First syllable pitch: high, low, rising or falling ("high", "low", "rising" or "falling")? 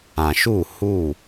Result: low